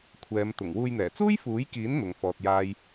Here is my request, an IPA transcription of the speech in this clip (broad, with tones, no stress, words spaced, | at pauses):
kʷʰɛː˨˧m t̪ʊ˨˩ŋwuː˧jn̪ɛː˨˩ t͡suː˥jfuː˨˥jkiː˨˥n n̪ʊ˨ŋfɔː˧t̚ jaː˥j